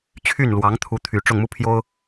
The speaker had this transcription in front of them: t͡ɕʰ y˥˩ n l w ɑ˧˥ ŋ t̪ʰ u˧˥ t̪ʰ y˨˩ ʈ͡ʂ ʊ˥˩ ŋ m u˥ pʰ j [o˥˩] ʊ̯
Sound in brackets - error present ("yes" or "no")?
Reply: yes